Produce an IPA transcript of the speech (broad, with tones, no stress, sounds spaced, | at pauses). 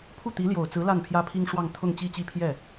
pʰ u˥˩ t̪ i˧˥ l j o˨˩ ʊ̯ t͡s ɹ̩˧˥ l a˥˩ n pʰ j ä˥ pʰ i˥ ŋ ʂ w ɑ˥˧ ŋ t̪ʰ ʊ˥˧ ŋ t͡ɕ i˥˧ t͡ɕ i˥˧ pʰ j ɛ˥˩